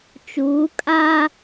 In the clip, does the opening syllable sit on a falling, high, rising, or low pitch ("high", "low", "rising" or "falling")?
rising